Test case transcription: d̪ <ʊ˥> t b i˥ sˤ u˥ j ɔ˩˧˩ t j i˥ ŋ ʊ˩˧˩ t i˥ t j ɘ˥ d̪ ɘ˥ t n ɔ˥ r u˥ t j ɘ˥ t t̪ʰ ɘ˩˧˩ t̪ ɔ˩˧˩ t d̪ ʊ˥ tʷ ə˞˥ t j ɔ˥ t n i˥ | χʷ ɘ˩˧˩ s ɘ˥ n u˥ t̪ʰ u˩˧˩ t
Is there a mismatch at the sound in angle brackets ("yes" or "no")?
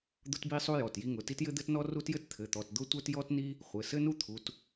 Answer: no